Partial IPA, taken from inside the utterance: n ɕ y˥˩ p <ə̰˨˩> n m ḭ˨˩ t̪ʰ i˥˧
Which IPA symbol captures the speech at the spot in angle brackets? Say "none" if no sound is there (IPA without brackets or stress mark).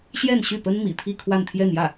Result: ə˥